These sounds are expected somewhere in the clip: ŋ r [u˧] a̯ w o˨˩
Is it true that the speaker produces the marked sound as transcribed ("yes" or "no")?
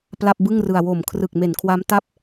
no